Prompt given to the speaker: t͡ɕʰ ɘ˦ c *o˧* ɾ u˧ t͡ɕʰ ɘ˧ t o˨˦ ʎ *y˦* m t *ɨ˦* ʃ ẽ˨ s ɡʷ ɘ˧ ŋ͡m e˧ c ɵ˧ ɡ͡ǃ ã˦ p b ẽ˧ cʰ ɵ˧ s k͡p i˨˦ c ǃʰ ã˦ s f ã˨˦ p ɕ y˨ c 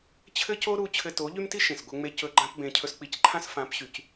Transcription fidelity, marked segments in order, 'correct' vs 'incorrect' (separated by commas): incorrect, correct, incorrect